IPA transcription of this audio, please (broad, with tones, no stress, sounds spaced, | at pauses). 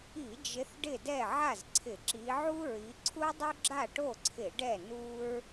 i˧˩˧ d͡ʒ ɪ˨˦ θ ɖ ɪ˥˩ d ɛ˥˩ ʕ a˥˩ z ǀʰ ɪ˧˩˧ ǁ i˨˦ ʕ u˥ ɹ i˨˦ ǀʰ u˥ dˤ u˥ ɡ͡ǁ a˥˩ ʈ o˥˩ ǀʰ ɪ˧˩˧ ɖ ɛ˥˩ n u˥ ɹ